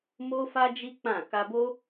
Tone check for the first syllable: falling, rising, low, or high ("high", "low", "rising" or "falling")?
high